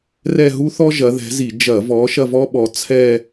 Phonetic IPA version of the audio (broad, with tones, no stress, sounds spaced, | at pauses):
r ɛ˥˧ ɦ u˥ θ ɔ˥ ʒ ɐ˨˦ ð ɛ̤˨˦ z i˧˩˧ d͡ʒ ɐ˧˩˧ v ɔ˨˦ ʃ ɐ˥˧ v ɔ˥ ɓ ɔ˨˦ t͡sʰ ɛ˥˧